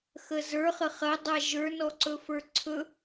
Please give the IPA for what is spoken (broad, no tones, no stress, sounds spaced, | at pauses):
x ə z ə˞ χ ə χ ɐ dˤ a ʒ ə˞ n ɔ ǀ ɵ f ə˞ ǀʰ ɵ